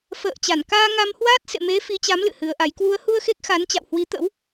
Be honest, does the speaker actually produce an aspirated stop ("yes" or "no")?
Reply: no